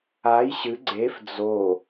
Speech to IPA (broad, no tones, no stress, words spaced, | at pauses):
aj ɕɨ ɡ͡ǀef d͡zo